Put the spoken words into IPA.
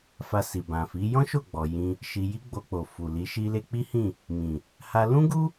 fa˧si˨bã˨fi˨˦ jɔ̃˦ʃo˦˨ɡ͡bɔ˨ jĩ˧ | ʃi˧ji˦ɡ͡bo˧k͡po˨ fu˨li˨˦ ʃi˧le˧k͡pi˦hĩ˦˨ | mĩ˨ | ha˧lũ˦ɡu˦

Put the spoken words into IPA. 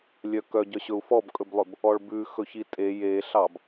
lʲœkœɟœɕɵu̯ fɔbkʼɵblˠɵb | ɔɭbʉ xɵçitʼe jeɬɑb

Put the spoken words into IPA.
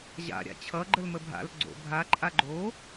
ʑa̰ɾʲa̰ t͡ɕʰʌɡ͡ǃəlmə bʱa̰l ɡ͡ǀo̰ bʱaǃʼa ɡ͡ǃo

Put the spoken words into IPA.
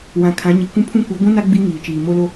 wã˨kʰã˨˦ɲi˨ kʷũ˦pʰũ˦kʷi˨˦ ɡʷũ˦na˦ ɡ͡bi˦ ŋiː˨t͡ʃiː˨ mo˦lo˦

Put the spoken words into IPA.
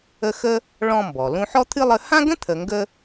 ə˦xə˥ | ɭɔ̃˦mbɔ˩lũ˦ ħɔ˥t̪ʰɨ˥lˠə˦ hã˥ɡə̃˥t̪ʰə˨ ŋɡə˦

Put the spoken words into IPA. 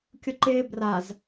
kʲʊǃɪː braz

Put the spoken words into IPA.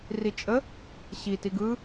rit͡ʃʼə | ɕi tiɡɯ

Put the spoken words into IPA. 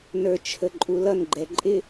nə˞t͡ʃʰəǃʼulʌn ɡ͡ǃɛǃʼɪ

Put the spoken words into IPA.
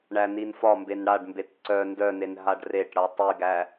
ɳæninfɒmben ɽaɖmbet ǀœ ndœnen ɦaɖreʈɽʌ tˤiɡæ

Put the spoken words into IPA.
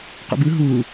qṵbɯ ɦuː

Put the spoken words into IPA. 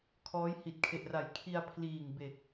kʰɔː˦˥jhi˨˩t̚kʰe˨˩ʔra˨˩j kʰi˧a̯ pʰliː˨˩ŋbe˨˩k̚

